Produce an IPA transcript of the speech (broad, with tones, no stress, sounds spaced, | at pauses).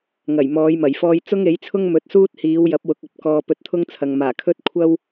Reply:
ŋ ɐ˨˩ j m ɔː˨˧ j m ɐ˨˩ j f ɔː˧ j t͡s ʊ˥ ŋ e˨˥ j t͡sʰ ʊ˥ ŋ m ɵ˨˥ t̚ s uː˥ t̚ h iː˨˧ w j ɐ˨˥ p̚ w ʊ˨ k̚ ɐ˥ p̚ k ɔː˧ p ɵ˧ t̚ t̪ʰ ʊ˥ ŋ t͡sʰ ɐ˨ ŋ m aː˨˩ kʰ ɵ˥ t̚ kʷʰ ɐ˥ w